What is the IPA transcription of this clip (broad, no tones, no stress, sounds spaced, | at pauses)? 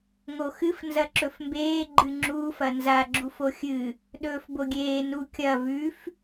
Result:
ŋ o x ɨ f n z ɐ ǁ ɵ f m b eː ɡ͡ǃ ɨ ŋ͡ǁ uː f ɐ n z a ɡ͡ǁ u f o xʲ ɨ | ɗ ɵː f b o ɡʲ eː n u kʲ ɐ v ʉ f